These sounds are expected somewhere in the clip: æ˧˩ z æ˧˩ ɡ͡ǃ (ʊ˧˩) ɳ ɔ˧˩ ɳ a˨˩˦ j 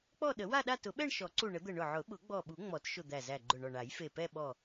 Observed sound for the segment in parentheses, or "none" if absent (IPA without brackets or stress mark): ʊ˧˩